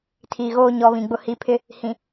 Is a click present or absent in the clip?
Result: absent